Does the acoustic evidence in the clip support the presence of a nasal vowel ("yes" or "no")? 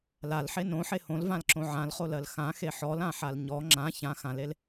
yes